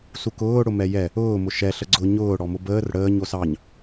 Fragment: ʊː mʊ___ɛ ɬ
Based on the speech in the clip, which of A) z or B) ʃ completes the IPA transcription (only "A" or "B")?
B